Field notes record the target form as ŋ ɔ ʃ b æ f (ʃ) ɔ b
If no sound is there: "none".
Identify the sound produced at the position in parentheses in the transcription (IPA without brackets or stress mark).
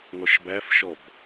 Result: ʃ